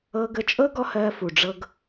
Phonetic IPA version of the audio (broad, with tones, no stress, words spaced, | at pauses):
ɤ˧ɡə˧t͡ʃʼɤ˦ ɡɔ˦hɜ˧ fu˨ɖ͡ʐɤ˧ɡ